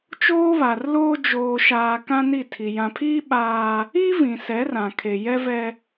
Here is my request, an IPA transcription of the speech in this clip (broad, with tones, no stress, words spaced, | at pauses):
t͡ʃoː˦βa˨rloː˦ d͡ʒoː˨ʃaː˨ kã˦ni˦˨tʰi˨ jã˨pʰiː˦ ɓaː˦ | i˦ vĩ˨sɛ˨˦rã˨kʰe˨ jɛ˦vɛ˦